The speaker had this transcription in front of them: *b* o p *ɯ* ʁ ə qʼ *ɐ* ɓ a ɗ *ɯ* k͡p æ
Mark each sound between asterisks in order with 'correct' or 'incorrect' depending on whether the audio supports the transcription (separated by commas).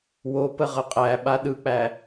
incorrect, incorrect, incorrect, correct